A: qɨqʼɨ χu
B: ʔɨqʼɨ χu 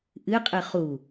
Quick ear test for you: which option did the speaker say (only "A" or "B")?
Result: B